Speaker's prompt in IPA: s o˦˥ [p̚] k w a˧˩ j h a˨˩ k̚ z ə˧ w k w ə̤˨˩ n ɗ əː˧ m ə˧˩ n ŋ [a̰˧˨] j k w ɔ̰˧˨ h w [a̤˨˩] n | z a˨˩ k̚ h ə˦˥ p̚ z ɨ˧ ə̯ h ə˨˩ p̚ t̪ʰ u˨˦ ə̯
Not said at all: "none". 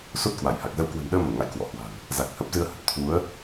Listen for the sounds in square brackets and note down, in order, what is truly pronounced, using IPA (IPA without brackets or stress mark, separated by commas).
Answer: t̚, a̰˧˨, a̤˨˩